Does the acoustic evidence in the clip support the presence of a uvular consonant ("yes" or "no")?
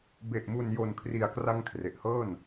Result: no